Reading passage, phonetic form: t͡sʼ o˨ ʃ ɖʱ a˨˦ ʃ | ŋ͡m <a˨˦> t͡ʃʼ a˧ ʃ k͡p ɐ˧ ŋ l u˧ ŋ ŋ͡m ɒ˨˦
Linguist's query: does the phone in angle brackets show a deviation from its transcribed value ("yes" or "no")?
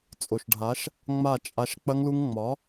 yes